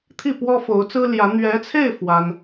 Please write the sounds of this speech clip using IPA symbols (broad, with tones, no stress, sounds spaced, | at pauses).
t̪ʰ i˥˩ p w ɔ˥ f o˧˥ ʊ̯ t͡s ɹ̩˥ l j ä˧˥ n̪ ɥ ɛ˧˥ t͡sʰ e˥˩ ɪ̯ f w a˥ n